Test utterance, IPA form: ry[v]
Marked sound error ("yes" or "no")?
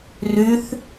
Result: yes